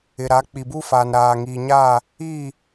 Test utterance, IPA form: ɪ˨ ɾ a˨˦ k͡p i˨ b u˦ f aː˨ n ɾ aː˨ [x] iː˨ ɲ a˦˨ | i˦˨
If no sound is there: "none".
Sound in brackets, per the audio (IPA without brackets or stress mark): ŋ